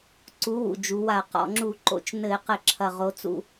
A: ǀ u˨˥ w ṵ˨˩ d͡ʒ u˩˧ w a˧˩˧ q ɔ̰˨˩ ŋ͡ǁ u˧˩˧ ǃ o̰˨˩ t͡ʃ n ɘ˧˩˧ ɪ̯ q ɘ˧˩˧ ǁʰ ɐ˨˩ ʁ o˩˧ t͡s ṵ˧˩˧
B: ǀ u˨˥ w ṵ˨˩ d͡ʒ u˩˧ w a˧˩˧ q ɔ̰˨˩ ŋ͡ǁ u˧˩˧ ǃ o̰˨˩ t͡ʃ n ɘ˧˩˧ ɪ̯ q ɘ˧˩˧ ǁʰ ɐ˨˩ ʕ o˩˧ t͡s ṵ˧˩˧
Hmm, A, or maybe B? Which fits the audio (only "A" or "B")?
A